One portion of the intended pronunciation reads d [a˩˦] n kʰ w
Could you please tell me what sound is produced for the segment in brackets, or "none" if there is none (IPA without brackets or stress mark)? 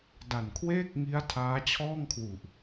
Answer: a˨˩